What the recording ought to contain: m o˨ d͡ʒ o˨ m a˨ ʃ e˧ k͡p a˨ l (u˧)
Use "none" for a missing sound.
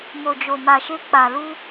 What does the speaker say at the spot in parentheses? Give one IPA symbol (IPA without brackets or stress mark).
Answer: u˧